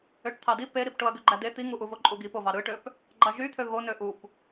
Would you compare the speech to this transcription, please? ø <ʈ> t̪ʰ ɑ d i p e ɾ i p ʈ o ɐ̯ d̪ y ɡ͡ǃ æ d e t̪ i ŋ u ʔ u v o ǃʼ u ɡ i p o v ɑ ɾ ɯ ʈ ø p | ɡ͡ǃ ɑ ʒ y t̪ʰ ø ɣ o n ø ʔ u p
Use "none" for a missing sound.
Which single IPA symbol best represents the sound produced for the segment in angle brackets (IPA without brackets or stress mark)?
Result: ʈ